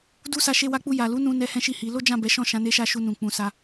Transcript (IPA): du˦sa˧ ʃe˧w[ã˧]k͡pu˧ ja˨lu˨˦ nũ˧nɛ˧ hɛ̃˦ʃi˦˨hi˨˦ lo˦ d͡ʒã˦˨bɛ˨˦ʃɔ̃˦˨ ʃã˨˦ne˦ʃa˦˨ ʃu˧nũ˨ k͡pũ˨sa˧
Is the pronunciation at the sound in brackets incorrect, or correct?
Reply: incorrect